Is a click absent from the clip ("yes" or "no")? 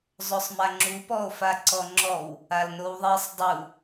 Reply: no